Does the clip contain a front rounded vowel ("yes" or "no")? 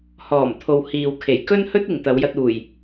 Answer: no